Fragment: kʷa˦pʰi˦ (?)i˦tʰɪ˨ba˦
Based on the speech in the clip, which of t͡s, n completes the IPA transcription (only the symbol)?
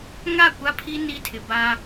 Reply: n